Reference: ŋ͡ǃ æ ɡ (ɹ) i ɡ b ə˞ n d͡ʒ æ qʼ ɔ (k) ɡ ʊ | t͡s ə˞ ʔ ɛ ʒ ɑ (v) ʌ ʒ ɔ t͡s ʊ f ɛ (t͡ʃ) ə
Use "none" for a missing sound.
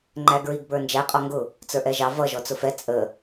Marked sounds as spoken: ɹ, ŋ, v, t͡sʼ

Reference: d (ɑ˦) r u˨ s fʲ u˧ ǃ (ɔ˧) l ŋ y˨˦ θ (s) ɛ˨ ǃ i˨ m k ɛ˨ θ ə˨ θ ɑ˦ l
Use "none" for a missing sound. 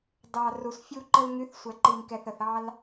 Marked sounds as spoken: ɑ˨, ə˧, sʷ

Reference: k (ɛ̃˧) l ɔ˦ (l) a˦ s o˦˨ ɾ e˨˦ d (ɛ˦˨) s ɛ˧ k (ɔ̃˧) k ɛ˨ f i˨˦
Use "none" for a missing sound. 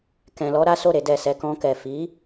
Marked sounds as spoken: ɛ̃˧, ɾ, ɛ˦˨, ɔ̃˧

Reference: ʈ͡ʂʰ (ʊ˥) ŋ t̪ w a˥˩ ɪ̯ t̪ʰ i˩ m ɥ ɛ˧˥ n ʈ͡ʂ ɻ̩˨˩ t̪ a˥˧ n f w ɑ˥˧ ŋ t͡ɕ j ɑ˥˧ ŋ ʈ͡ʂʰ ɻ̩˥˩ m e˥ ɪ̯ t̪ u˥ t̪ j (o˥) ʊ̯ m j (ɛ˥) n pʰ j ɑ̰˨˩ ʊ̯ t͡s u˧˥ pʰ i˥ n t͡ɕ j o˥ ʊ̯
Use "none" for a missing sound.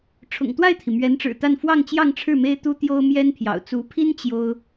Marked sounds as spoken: ʊ̰˨˩, o˥, ɛ˥

